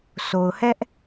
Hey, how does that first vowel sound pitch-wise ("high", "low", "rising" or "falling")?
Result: low